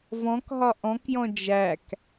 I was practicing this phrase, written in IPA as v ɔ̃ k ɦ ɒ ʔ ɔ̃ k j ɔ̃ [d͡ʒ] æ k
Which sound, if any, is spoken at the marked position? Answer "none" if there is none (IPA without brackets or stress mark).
d͡ʒ